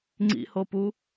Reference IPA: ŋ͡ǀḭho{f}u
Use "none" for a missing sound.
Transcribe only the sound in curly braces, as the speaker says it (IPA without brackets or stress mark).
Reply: p